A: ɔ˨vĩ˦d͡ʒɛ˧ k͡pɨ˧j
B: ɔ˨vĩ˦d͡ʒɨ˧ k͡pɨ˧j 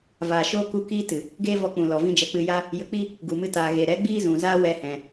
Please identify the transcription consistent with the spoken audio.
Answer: A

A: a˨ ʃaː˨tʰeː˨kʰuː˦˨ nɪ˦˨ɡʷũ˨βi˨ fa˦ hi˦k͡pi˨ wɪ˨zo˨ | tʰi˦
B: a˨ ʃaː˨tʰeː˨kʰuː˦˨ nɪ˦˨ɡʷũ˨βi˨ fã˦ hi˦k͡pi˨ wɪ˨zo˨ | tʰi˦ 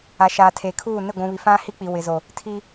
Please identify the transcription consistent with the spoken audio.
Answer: B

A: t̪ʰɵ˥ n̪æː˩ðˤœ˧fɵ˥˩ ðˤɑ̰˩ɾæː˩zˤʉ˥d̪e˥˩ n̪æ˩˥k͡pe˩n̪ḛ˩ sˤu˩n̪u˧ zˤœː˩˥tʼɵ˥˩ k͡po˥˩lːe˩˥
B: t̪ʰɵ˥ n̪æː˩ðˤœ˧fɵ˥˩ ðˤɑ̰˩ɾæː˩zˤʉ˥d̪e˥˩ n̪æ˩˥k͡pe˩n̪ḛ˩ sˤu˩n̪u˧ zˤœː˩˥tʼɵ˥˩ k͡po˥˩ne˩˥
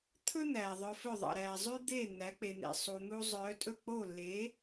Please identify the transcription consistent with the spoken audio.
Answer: A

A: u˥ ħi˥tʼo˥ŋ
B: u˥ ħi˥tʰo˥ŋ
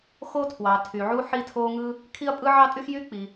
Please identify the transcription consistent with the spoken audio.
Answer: B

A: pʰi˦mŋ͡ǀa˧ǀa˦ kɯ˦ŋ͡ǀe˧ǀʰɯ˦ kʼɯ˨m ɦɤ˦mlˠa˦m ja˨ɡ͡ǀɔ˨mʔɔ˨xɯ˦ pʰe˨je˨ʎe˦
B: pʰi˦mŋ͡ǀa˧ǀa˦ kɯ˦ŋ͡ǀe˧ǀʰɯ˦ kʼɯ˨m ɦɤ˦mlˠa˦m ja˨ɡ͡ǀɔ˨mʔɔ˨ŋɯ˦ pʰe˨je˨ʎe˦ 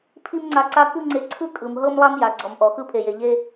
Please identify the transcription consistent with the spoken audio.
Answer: A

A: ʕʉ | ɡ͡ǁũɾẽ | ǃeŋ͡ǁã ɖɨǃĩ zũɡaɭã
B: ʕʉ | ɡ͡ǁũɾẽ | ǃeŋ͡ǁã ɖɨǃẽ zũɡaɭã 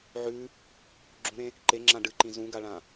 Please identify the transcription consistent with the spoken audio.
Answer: A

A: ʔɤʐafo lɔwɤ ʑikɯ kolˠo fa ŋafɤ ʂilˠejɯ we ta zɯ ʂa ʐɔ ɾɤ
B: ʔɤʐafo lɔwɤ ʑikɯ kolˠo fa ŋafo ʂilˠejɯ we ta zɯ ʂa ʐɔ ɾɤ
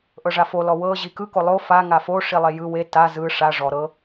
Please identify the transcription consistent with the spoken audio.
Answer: B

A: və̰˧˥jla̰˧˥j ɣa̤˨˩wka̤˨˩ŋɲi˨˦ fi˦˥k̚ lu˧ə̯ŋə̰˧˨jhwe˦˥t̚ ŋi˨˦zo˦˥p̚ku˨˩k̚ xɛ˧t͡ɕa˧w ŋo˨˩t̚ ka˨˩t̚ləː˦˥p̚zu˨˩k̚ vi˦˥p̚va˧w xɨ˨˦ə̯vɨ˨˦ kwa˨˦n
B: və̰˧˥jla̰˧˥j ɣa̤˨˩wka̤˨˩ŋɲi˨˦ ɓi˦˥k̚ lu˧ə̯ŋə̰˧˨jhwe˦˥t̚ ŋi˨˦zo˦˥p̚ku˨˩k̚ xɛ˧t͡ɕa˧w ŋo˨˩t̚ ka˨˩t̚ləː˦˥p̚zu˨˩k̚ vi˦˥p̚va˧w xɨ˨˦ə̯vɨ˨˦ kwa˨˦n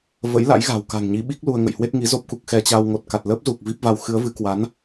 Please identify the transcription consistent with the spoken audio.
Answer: B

